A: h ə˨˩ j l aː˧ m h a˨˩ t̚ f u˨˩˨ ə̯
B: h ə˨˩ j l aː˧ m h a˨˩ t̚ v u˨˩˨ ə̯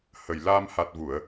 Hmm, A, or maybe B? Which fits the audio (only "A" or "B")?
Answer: B